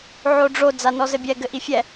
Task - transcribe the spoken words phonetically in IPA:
ʕ o ɖ͡ʐ o d͡z a n ɔ z ɘ bʲ ɛ ɡ ɘ ʔ i fʲ ɛ

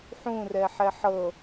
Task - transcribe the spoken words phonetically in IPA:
ħ ũ r ɛ ħ ɛ ħ ɤ

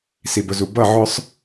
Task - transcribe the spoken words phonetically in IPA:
s i˨ b ʊ˨ z u˨ b ʌ˦˨ ʕ ʊ˦ sˤ

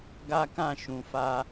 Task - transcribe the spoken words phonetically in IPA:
ɡ a˦ k ã˦˨ ʃ ũ˨ f a˧

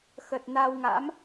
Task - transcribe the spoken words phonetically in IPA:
x ə˨˩ t̚ n a˧ w ŋ a̰˧˥ m

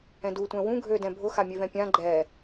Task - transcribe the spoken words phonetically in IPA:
ɛ̃ d u tʷ ɛ̃ w ũ ɡʱ ø d ɛ̃ bʱ ʊ x a mʲ ø v ɛ̃ pʲ ã ɡ͡ǃ ɛ

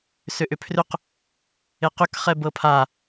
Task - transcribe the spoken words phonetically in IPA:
s ʏ ʔ ʏ pʰ r ʏ q | e q ʏ k χ ɛ b ɤ pʰ a

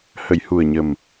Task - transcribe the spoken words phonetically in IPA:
h ə˨˩˨ j h u˨˩ ə̯ ɲ ə˨˩ m

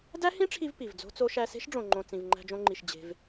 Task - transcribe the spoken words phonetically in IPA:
d æ˦ h ĩ˦ ʈ͡ʂʰ i˧ v p i˨ v d͡z o̤˦ t͡s o˦ ʃ æ˧ s e̤˦ ʃ ɖ͡ʐ õ˨ ŋ͡ǃ õ˨ t͡s ĩ˨ v ŋ͡ǃ æ̤˧ d͡ʒ õ˧ ŋ͡ǃ i˨ ʃ d͡ʑ e̤˧ v

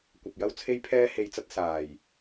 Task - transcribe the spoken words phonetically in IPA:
kʷ ɐ˨ p̚ j ɐ˥ w t͡sʰ e˥ j pʰ ɛː˥ h e˧ j t͡s ɐ˥ t̚ s aː˨˩ j

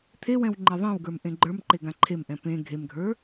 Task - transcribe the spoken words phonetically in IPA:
t̪ʰ e w ɛ̃ w ŋ͡ǃ e ðˤ ẽ w ɡ ə˞ m ʔ ẽ ɡ͡ǃ ə˞ m ǃ e ɡ ã ǃʰ e m ʔ ɛ̃ p ẽ ɡʱ e m ɡʱ ə˞

